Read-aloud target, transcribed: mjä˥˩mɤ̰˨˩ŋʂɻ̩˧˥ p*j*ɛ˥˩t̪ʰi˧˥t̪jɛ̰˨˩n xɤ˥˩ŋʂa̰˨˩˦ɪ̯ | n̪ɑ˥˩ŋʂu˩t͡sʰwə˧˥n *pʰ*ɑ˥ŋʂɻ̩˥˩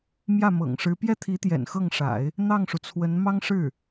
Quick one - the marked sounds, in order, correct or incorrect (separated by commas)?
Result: correct, incorrect